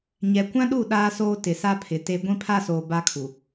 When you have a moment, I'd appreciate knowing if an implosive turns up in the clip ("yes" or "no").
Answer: yes